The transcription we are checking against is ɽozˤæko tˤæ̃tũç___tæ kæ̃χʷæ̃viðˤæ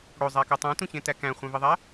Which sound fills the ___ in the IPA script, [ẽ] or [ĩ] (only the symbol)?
ẽ